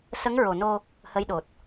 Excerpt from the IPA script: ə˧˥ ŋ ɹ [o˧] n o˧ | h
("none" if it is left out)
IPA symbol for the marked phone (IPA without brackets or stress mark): o˨˩